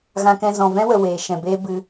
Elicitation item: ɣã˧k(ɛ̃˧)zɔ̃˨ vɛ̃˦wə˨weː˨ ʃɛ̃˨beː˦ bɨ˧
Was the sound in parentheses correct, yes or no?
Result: yes